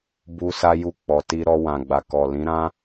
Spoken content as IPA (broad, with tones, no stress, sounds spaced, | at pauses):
b u˧ s a˧ j u˧ k͡p ɔ˨ t i˧ ɾ ɔ˧ w ã˨ ɡ͡b a˨ k ɔ˨ l ĩ˨˦ ɾ ã˦